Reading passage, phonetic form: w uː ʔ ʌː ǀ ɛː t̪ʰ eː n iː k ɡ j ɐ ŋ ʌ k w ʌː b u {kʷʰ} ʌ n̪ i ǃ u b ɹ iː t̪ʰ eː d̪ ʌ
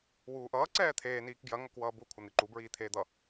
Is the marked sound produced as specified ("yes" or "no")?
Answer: yes